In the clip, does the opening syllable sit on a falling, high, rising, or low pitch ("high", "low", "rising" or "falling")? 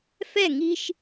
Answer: falling